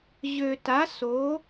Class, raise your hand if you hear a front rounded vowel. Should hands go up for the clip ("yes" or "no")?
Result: yes